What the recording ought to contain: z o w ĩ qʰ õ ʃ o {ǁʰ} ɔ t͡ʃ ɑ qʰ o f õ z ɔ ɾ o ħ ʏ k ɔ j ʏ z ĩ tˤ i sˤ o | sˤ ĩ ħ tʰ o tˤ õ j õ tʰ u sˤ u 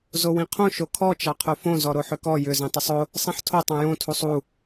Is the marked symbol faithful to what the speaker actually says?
no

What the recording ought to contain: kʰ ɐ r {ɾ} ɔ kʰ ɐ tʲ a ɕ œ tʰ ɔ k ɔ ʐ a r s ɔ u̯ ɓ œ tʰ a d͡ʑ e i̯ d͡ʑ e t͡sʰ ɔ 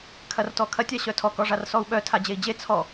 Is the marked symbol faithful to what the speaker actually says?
no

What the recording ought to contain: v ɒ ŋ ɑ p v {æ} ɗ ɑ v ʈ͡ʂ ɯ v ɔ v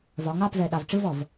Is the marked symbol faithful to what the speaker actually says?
no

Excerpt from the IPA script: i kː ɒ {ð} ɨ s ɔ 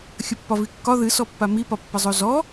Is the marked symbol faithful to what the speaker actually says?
yes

